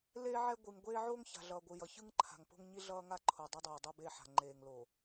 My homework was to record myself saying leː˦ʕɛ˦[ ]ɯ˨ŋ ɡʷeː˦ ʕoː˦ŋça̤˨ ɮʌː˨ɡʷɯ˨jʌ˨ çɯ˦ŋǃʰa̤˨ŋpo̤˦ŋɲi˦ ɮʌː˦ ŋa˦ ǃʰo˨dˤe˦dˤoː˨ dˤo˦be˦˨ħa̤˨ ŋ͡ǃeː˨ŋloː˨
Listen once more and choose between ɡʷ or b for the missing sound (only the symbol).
ɡʷ